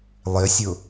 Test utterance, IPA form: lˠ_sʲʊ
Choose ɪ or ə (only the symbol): ɪ